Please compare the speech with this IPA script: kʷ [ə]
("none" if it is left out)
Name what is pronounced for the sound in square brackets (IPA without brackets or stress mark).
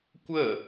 ə